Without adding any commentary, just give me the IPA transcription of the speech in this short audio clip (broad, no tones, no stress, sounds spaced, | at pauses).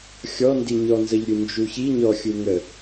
xʲ ɔ n d i ɲ ɔ n z ə ʎ ɾʲ u n d͡ʒ u ç i ɲ ɔ xʲ u ŋ ə